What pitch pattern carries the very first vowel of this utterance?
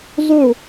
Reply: falling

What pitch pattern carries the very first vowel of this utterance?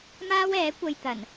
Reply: high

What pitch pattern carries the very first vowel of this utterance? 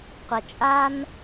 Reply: low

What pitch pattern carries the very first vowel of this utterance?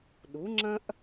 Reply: rising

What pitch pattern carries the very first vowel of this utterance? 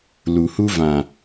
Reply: low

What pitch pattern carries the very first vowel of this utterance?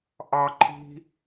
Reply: high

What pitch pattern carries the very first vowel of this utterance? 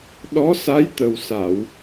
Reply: rising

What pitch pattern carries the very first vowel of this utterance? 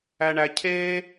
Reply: high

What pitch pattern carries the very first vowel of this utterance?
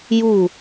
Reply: falling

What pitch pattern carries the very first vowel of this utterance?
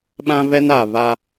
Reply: high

